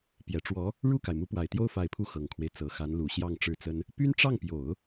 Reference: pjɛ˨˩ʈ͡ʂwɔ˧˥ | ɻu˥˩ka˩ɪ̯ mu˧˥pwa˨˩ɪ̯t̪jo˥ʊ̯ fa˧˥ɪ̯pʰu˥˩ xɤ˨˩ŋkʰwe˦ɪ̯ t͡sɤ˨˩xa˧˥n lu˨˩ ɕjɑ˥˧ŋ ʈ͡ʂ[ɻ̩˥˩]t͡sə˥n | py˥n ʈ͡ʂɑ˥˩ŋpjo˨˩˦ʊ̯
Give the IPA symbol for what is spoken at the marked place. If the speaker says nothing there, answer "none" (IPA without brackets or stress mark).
ɻ̩˥˩